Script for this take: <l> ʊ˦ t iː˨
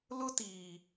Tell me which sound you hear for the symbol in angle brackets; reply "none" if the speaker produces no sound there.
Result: l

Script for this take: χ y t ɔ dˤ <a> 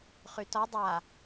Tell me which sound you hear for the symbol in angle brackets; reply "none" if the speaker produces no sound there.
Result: a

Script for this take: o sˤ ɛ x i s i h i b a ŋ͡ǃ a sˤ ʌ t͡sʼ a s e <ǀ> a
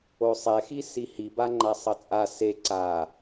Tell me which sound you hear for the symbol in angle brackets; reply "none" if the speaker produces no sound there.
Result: ǀ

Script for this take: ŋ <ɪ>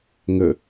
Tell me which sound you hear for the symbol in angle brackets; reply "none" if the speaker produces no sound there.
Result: ə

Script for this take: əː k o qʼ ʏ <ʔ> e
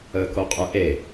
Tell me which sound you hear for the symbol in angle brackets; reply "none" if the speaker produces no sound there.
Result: ʔ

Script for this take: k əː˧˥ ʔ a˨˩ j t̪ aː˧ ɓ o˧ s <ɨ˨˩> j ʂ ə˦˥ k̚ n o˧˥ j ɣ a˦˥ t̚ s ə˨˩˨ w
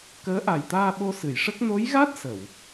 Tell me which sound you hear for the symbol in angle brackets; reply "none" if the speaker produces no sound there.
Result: ɨ˨˩˨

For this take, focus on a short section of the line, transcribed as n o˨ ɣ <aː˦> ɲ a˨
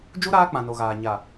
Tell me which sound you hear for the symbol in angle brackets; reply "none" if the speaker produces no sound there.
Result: aː˨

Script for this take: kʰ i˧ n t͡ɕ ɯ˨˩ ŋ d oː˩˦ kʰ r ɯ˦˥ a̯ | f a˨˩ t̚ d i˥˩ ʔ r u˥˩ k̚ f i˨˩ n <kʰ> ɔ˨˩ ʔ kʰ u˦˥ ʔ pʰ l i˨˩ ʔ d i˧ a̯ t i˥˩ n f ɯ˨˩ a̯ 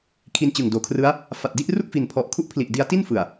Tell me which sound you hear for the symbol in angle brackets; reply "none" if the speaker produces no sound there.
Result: pʰ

